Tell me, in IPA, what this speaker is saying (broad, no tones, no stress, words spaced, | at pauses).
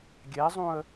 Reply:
ɡʲɛzˤũə̯